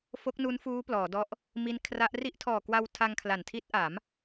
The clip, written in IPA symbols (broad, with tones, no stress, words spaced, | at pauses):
fo˦˥k̚nu˦˥nfuː˦˥ plɔː˩˦dɔ˦˥ʔ | mi˦˥n kʰra˦˥ʔ ri˦˥ʔ tʰɔː˨˩kwa˧w tʰa˧ŋkʰla˨˩ntʰi˦˥t̚ʔa˩˦m